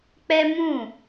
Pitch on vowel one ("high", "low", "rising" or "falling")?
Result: high